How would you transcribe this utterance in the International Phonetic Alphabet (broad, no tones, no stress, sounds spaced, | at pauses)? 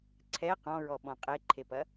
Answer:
ǀʰ ɛ q ɔ̃ ɹ ɔ ɓ ɔ̃ qʼ e ǃʰ e p ɐ